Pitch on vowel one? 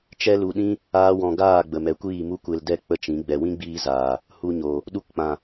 high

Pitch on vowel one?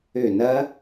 falling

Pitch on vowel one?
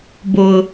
low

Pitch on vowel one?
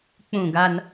falling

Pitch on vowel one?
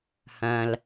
low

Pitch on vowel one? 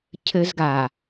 high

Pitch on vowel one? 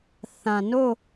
low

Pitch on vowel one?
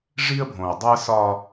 high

